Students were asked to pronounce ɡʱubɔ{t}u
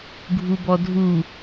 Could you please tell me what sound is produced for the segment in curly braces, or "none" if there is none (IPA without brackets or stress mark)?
dʱ